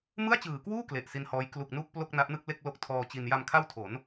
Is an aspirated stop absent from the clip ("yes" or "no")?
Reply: no